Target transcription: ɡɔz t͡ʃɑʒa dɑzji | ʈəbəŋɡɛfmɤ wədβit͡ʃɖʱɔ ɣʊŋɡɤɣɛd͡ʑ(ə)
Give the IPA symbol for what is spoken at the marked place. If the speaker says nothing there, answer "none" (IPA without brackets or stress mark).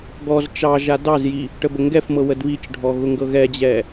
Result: ɛ